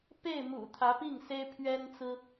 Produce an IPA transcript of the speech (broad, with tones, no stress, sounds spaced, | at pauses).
p e˥˩ ɪ̯ m ṵ˨˩ t̪ʰ ä˧˥ p i˥˩ ŋ s e˥ ɪ̯ pʰ ɥ ɛ˥ n t͡s ɹ̩˥